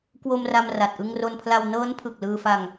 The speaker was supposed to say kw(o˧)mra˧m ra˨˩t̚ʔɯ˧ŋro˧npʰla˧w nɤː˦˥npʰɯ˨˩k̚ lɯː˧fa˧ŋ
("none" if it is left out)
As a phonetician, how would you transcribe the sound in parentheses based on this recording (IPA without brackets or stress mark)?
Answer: o˧